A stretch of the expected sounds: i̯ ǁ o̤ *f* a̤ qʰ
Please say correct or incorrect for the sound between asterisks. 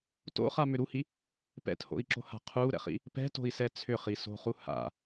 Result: incorrect: h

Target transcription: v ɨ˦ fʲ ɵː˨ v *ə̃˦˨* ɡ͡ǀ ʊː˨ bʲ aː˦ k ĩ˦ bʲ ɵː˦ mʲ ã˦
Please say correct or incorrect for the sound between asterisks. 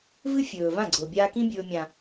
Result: incorrect: ã˦˨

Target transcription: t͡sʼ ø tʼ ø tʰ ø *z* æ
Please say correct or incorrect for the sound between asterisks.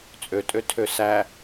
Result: incorrect: s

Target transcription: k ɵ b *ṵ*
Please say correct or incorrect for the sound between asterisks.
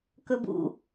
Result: correct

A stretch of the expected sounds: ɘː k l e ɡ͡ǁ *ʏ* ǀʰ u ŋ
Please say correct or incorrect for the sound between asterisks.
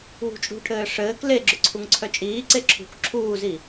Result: correct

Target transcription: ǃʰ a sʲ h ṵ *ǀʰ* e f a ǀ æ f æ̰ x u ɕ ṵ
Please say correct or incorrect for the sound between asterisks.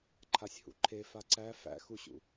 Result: incorrect: ǃʰ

